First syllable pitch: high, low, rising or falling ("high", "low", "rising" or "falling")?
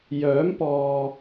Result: rising